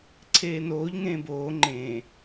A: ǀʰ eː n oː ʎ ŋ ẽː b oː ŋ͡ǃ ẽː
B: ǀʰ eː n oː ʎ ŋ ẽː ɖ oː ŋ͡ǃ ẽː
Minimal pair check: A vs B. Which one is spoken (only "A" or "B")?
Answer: A